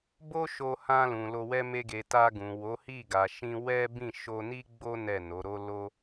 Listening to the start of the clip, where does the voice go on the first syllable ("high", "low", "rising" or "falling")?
high